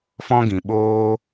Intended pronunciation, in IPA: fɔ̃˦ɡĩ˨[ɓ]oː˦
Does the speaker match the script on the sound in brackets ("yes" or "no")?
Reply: yes